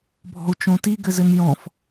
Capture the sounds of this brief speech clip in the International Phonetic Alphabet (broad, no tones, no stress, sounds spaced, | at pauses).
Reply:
bʱ ɔ̤ u̯ t͡ʃ õ t i ɡ ɘ z ɘ n j ɔ̃ f